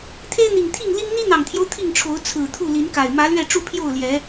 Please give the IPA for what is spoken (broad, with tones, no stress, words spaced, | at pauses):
t̪ʰe˦ɪ̯n̪i˨˩ŋt̪ʰi˥˨ŋ li˦ŋ n̪i˦n̪ɑ˨˩ŋt̪ʰjo˦ʊ̯ t̪ʰi˥˨ŋʈ͡ʂʰo˨˦ʊ̯ t͡sʰɹ̩˨˩t̪ʰu˥˨li˨˦nka˨˩ɪ̯ mä˨˦lɥɛ˥˨ ʈ͡ʂu˥˨pʰjo˥˨ʊ̯ljɛ˨˦